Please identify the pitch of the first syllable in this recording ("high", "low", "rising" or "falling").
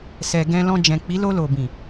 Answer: low